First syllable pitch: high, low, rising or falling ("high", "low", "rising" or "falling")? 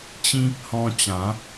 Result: high